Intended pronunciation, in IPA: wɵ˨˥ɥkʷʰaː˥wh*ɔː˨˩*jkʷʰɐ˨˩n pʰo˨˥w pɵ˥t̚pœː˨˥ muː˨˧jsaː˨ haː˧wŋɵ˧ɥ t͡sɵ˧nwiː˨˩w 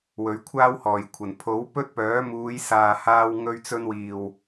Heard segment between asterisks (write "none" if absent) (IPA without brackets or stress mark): ɔː˨˩